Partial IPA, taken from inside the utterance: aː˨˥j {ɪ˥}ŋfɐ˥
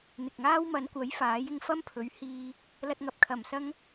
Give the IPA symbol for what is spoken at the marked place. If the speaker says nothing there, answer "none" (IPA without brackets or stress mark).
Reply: ɪ˧